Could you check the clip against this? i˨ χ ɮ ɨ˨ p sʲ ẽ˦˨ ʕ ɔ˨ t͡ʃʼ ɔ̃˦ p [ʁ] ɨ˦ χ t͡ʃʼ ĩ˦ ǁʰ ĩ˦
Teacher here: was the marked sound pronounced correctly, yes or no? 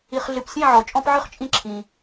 no